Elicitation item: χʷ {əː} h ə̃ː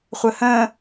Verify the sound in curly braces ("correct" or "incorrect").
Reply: correct